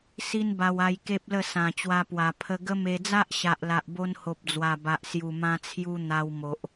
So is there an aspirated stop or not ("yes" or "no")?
yes